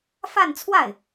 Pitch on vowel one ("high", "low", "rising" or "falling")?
falling